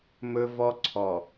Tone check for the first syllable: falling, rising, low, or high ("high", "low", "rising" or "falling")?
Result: high